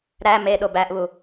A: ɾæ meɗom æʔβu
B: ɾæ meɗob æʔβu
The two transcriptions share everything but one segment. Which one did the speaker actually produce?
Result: B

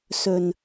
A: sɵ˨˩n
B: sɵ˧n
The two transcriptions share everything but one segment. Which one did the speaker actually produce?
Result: A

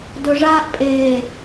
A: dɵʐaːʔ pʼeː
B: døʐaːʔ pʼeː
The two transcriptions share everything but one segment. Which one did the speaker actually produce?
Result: A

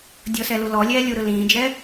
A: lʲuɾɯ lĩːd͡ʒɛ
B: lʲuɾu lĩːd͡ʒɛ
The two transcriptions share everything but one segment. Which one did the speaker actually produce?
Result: A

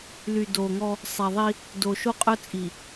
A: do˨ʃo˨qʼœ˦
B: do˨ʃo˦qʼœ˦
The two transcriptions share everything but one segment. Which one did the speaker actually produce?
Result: B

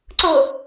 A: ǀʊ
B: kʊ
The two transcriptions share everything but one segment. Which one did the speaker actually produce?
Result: A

